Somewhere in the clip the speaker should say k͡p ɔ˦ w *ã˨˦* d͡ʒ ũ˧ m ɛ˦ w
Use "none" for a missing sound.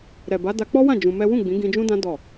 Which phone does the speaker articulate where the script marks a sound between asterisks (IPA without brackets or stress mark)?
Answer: ã˦˨